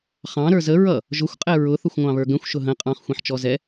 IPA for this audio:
χ ɑ̃ ɾ ə˞ z ə ɹ ʌ | ʒ ʊ xʷ qʼ ɛ ɹ ʊ θ ʊ xʷ ŋʷ ɑ̃ β ə˞ ɡ ə̃ xʷ ʃ ʊ ɦ ə̃ qʼ ɑ̃ χ xʷ ĩ ħ t͡ʃ ɔ z ɛ

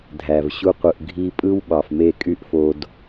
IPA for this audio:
dʱ æ˨ v ɕ u˧ qʷ ɯ˨ ʔ ɡʱ i˧ pʼ ɯ˦ w ɓ ɑ˨ f m e˦˨ kʼ y˦ ʔ f o˧ d

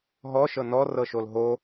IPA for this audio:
ɦ ɔ ʃ ɤ n ɔ r ɤ ʃ o l ɦ o

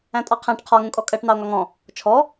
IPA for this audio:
æ̃ tʼ ɑ qʰ æ̃ ʈ qʰ ɒ ŋ ũ kʼ ɔ kʼ ɜ ʈ n ɑ o̯ ŋ ɒ ŋ ɔ̃ | t͡ʃʰ ɔ

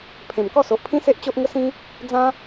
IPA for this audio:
pʰ ẽ˨˩ m k ɔ˥˧ s o˨ ʔ pʰ ĩ˦ s e˦ ʔ t͡ɕ o˦ ʔ ŋ ə˦ s ĩ˦ | d͡z ã˦

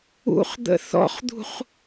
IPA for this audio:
ṵ χ d̪ ə̰ θ ɔ̰ χ d̪ ṳ χ

